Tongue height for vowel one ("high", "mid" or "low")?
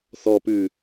mid